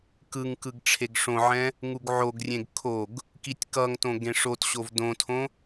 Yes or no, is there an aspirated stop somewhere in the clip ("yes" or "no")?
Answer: yes